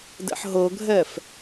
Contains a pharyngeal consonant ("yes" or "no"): yes